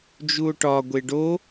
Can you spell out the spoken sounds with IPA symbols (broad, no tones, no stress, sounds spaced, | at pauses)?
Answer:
d͡ʒ u o̯ ʈ ɒ ɡʷ e ɖ o